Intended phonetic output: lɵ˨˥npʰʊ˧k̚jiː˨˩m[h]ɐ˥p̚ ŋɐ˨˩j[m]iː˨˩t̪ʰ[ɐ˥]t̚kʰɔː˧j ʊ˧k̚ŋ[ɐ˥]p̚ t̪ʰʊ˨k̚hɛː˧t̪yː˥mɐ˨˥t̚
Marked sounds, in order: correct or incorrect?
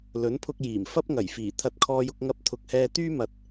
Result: incorrect: f, incorrect: f, incorrect: ɐ˧, incorrect: ɐ˧

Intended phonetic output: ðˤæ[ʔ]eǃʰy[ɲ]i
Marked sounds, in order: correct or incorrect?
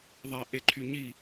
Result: correct, correct

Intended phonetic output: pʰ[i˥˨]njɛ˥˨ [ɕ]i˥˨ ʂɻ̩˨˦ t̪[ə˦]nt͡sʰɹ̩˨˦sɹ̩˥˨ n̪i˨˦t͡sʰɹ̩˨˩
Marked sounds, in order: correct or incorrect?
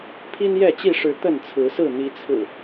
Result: incorrect: i˦, incorrect: t͡ɕ, incorrect: ə˥˨

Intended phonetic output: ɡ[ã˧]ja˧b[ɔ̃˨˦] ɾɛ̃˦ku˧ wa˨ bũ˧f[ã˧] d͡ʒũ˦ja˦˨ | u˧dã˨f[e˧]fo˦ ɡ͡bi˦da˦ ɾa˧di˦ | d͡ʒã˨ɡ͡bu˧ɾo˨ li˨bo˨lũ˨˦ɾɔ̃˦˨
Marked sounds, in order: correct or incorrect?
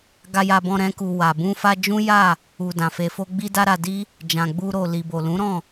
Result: incorrect: a˧, incorrect: ɔ̃˧, incorrect: a˧, correct

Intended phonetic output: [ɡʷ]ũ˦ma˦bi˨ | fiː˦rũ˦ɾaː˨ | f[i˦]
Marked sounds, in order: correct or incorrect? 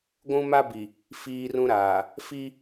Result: correct, correct

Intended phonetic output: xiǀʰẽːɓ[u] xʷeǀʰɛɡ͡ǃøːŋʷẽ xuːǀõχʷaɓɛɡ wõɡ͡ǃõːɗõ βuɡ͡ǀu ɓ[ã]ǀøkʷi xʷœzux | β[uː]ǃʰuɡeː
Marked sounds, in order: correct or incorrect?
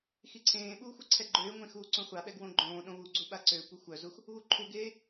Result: incorrect: uː, incorrect: a, incorrect: u

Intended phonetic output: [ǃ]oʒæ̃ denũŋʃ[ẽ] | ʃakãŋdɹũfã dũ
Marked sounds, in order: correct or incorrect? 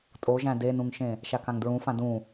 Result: incorrect: tʼ, correct

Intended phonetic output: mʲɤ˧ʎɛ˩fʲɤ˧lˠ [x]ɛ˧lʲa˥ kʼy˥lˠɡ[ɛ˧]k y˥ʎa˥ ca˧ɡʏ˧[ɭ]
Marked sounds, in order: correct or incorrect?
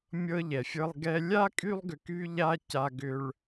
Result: incorrect: ɡ, incorrect: ʏ˧, correct

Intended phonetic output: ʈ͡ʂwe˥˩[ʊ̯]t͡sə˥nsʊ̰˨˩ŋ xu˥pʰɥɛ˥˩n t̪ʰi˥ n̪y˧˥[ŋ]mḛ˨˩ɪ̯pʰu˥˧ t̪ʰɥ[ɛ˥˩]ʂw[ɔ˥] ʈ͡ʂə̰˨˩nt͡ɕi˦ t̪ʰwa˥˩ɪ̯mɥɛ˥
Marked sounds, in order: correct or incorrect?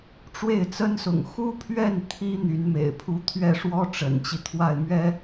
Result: incorrect: ɪ̯, incorrect: n, correct, correct

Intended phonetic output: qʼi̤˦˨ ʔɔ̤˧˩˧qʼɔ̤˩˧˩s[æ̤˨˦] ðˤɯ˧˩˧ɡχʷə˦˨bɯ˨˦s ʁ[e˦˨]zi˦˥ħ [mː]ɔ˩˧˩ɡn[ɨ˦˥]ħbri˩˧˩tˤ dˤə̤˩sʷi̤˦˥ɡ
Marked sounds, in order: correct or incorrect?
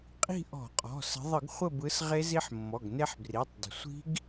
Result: incorrect: ə̤˨˦, incorrect: e˦˥, correct, incorrect: e˦˥

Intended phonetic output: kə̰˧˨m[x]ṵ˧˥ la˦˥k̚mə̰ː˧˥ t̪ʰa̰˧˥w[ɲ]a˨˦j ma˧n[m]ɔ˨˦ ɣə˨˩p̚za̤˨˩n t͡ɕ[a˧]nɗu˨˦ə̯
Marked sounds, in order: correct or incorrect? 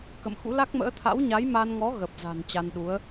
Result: correct, correct, incorrect: ŋ, correct

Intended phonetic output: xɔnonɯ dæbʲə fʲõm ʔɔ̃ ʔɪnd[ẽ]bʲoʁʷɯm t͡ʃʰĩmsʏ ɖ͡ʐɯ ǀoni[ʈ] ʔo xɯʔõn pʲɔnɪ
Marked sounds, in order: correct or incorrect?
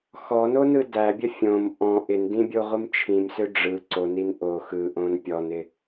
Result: incorrect: ĩ, incorrect: n

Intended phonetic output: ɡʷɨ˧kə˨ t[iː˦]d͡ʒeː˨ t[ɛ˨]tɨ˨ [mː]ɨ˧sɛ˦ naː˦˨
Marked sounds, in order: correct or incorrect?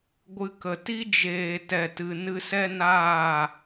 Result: incorrect: i˦, correct, incorrect: n

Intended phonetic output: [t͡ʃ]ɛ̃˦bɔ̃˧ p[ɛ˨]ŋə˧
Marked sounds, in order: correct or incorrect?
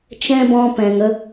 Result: correct, incorrect: ɛ̃˨

